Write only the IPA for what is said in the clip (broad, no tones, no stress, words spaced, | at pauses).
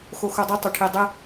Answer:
xoxodˤu tˤoʈʰi dˤɛ